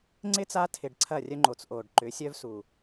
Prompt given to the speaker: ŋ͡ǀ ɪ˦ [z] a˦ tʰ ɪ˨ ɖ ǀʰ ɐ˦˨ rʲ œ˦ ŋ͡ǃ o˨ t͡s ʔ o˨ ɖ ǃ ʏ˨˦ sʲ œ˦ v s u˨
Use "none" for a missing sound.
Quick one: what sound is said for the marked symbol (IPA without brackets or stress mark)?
t͡s